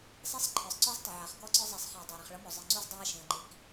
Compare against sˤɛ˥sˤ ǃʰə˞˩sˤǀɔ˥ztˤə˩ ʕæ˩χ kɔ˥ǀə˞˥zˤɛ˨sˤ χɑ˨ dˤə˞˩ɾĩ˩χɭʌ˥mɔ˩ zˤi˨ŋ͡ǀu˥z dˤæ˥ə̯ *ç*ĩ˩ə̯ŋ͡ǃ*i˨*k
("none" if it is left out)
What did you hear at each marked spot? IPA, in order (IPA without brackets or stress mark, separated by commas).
ʃ, i˨